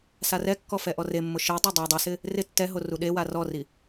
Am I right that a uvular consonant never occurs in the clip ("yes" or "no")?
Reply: yes